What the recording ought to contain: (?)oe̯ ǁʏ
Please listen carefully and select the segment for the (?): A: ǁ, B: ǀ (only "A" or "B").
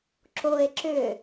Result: A